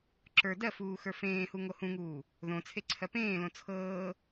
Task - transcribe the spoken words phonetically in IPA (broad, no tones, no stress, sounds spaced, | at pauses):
ǁ ə˞ d ɜ f uː x ə˞ f ẽː h u ŋ o h ũ ŋ uː | ð õ t͡sʰ e ǀʰ ɜ p ẽː l õ t͡sʰ ɤː